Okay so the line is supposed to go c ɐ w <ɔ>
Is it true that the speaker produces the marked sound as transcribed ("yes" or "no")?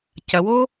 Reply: no